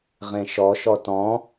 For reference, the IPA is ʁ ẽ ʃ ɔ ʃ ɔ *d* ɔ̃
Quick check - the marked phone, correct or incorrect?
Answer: incorrect: t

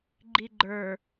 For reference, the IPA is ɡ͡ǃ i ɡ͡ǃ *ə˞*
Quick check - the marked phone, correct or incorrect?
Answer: correct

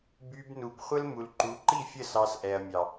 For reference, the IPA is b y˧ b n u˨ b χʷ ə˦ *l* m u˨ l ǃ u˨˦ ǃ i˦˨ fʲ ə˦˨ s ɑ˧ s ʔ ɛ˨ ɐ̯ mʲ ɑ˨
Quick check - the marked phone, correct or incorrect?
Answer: correct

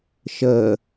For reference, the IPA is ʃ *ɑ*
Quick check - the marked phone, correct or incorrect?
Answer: incorrect: ə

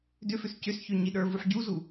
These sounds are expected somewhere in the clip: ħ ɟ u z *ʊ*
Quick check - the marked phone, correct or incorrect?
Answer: incorrect: u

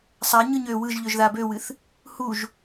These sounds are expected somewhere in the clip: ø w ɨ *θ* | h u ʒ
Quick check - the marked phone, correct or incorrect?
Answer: correct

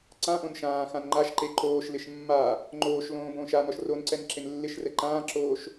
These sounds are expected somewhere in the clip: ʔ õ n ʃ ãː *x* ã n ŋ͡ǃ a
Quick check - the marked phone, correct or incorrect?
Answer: correct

